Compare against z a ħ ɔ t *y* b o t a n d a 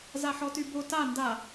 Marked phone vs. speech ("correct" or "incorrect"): correct